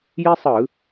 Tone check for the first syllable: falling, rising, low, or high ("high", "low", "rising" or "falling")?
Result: high